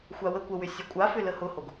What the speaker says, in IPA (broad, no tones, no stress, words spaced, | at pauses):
xʷawəkʷəwʏ sʲəkʷʼafʏ ləhʊhoɡ